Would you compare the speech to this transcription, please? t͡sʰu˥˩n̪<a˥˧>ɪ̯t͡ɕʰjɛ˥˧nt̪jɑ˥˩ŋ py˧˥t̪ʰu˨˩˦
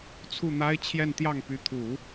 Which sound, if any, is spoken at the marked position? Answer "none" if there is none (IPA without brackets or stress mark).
a˥